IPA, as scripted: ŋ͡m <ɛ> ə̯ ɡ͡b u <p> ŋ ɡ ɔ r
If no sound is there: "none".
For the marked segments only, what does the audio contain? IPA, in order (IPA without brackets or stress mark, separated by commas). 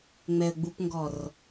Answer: ɛ, p